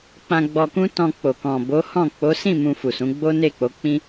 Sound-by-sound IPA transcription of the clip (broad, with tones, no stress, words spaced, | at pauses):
k͡pã˧ɡ͡bɔ˧kũ˦ tɔ̃˧k͡po˨ kɔ̃˨bo˨˦hɔ̃˦˨ k͡po˨˦sĩ˦˨ mũ˧fu˨sũ˨˦ ɡ͡bo˦ne˦˨k͡po˨˦k͡pĩ˦